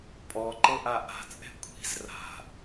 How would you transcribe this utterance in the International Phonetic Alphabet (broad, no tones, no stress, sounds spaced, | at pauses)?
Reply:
pʼ ɔ ǃ ɤ ʔ a ʔ a̤ t͡sʼ ɛ̤ kʷʰ i̤ z r a̤